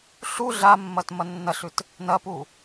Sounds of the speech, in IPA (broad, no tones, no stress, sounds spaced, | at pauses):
ɬ u ɮ a mː ɐ t m ɐ nː ɐ ɬ ʉ t | n ɐ p u